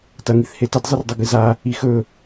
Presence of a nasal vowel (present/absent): absent